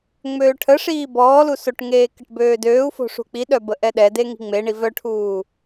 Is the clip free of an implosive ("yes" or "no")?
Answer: no